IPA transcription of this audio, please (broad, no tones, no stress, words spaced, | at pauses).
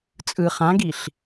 t͡sʼɯ χãɡiɬ